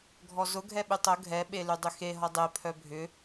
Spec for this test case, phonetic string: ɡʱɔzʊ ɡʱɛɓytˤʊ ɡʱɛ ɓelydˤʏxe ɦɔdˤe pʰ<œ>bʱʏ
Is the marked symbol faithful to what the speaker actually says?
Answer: yes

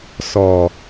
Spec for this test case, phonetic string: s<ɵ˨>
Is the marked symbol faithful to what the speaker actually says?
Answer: no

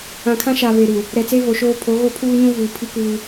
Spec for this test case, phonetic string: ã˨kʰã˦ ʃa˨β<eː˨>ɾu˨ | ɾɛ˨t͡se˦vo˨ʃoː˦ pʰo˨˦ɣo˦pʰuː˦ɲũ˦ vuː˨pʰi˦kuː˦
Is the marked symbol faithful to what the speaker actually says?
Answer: no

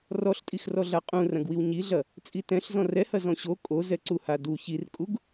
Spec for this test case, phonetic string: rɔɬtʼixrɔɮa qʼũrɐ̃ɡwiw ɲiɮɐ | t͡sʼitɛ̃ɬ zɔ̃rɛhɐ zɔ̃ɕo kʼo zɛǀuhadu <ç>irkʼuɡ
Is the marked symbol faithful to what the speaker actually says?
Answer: yes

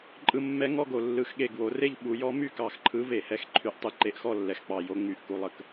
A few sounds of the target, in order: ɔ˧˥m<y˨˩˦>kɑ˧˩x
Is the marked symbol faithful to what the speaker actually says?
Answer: no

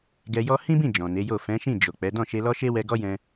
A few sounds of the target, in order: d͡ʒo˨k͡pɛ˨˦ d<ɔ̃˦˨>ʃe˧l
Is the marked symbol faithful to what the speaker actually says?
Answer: yes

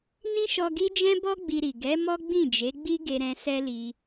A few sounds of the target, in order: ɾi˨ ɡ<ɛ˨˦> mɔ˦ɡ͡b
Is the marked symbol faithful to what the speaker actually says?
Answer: yes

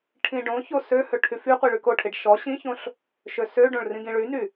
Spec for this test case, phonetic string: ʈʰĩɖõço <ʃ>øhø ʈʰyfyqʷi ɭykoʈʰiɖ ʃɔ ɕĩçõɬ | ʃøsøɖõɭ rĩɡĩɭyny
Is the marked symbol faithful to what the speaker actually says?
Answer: no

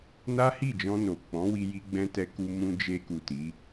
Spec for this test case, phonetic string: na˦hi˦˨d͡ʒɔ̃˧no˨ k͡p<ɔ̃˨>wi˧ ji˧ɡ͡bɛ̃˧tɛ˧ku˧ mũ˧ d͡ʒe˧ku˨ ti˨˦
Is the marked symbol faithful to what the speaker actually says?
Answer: no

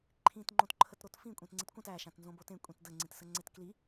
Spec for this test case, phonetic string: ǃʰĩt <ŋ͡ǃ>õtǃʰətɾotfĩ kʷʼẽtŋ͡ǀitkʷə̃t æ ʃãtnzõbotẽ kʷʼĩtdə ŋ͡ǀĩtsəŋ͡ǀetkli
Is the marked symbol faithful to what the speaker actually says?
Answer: yes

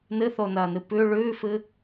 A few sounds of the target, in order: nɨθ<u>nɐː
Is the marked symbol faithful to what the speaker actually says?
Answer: no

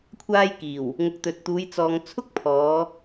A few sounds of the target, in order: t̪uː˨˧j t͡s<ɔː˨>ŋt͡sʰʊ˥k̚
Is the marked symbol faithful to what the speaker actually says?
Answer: yes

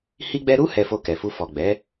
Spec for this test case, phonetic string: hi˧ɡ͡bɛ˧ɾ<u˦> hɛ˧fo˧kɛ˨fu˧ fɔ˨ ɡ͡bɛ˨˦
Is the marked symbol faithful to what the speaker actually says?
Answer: yes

